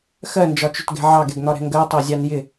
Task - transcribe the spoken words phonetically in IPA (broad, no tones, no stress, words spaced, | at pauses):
xɜnd͡ʒɒt͡ʃʊtɡɛ̤ ʕɑɡɛɡn̪ɒɾɛ̤ ŋɡɜtˤɜ zʲɑnjɪ